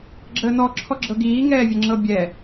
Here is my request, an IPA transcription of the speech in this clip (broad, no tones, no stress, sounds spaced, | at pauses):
ɡ͡ǁ əː n ɔ ǁʰ ɔ ɡ͡ǁ ɤ ɡ iː ŋ ɛː vʲ ə ŋ͡ǁ ɤ bʲ ɛ